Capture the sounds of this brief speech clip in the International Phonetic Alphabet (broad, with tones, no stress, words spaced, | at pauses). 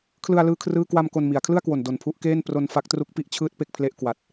kʰlɯ˧a̯ lɯː˥˩kʰrɯː˥˩ kwa˧m ko˧nmi˩˦a̯ kʰlɯ˥˩a̯kwo˨˩n do˨˩npʰu˦˥ʔkeː˥˩n pro˧nfa˦˥k̚tru˦˥k̚pi˥˩ʔ t͡ɕʰɯː˥˩t̚ pe˥˩k̚pʰle˦˥ʔ kwa˨˩t̚